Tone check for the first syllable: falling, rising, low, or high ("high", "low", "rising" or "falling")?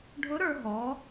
rising